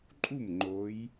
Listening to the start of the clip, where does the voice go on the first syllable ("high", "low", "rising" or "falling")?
falling